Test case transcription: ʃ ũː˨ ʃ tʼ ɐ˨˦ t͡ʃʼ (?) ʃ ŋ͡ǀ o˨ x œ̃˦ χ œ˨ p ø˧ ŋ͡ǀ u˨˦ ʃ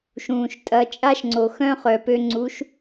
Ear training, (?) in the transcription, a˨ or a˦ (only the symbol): a˦